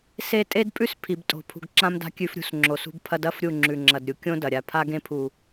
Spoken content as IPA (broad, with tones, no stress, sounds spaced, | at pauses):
s e˧ tʼ e˦ d pʼ ʉ˦ s pʰ i˨ b tʼ o̤˨ pʰ ṳ˨ ɡ ǁ ã˧ m d a̤˧ kʲ ʉ˧ f ɾʲ ṳ˧ s ŋ͡ǁ o˨ s ṳ˧ b pʰ ɐ˧ d ɐ˦ f ɾʲ u˦˨ ŋ͡ǁ ʉ˨ ŋ͡ǁ ɐ˨ d ɾʲ u˨ kʲ õ˦ d ɐ˨ ɾʲ a˧ pʰ a˧ ɡ ẽ˧ pʰ u˨